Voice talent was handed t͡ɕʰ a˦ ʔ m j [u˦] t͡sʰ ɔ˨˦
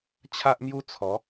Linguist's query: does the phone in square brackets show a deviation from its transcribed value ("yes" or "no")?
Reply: no